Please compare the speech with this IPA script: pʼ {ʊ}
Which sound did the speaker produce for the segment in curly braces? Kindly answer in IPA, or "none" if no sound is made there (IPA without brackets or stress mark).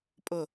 ʊ